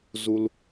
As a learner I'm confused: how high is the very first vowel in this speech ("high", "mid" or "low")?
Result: high